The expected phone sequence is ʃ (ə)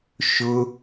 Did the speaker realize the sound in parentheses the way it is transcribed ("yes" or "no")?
no